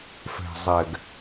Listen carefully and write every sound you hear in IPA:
f ɛ̤˨ zˤ ɛ˨ ɡ

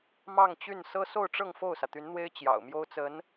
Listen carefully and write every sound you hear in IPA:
m ɑ˥˧ ŋ t͡ɕ y˥˩ n s ɤ˥ s o˥˧ ʊ̯ ʈ͡ʂ ɤ˥˧ ŋ f o˥˩ ʊ̯ s ä˩ t̪ y˧˥ n n̪ w e˥ ɪ̯ t͡ɕ j ɑ̰˨˩ ʊ̯ m j o˥ ʊ̯ t͡s ə˧˥ n

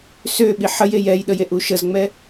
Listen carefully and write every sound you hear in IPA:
s ø ɓ i ħ ə j e j ɛ j ɗ ə j e ʔ u ʃ ə z ŋ͡m ɛ

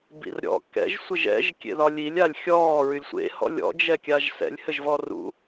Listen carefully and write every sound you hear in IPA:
b ḭ r ɾʲ ɔ̰ k ɛ̰ ʒ sʷ ɘ ʒ ɛ̰ ʒ kʲ ḛ ð ɒ lʲ i lʲ a lʲ xʲ ɔː ɹ y lʲ sʷ ḛ h ɔ̰ lʲ ɔ̰ d͡ʒ ɛ kʲ a ʒ s ɛ̰ lʲ h ɘ ʒ v ɔ r ṵ

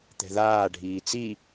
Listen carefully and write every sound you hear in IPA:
t̪ ɛ̤ ð aː ɖʱ iː t͡s i

